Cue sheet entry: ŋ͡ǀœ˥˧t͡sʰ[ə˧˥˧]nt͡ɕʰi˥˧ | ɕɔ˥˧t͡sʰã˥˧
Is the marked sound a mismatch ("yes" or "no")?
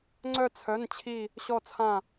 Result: yes